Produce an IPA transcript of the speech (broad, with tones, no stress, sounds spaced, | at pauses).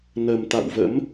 n ə˨˩ m t̪ a̰˧˨ w v ə̰˧˥ m